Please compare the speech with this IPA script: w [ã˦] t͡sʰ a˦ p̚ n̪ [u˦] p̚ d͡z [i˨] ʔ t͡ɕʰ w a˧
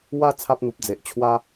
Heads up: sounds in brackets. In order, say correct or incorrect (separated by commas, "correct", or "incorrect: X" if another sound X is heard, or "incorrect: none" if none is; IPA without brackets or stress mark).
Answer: incorrect: a˦, incorrect: u˨, incorrect: e˨